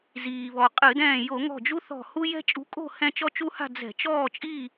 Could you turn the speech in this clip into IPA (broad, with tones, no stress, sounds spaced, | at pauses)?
z iː˩ β ɔ˩ qʼ ɨ˧˩˧ d ɛ̃ː˧˩ j o˧˩˧ ŋ ɔ̤˧˩ d͡ʒ u˦ θ ɔ̤˧˩ h u˦ j ɛ̤˦ t͡ʃʼ ṳ˨˥ kʼ o̤˥˨ h ɛ̃˦ t͡ʃ ɔ˦ t͡ʃ u˦ h a̤˥˨ d͡z ɛ̤˧˩˧ t͡ʃ ɔː˥˨ t͡ʃʼ i˥˨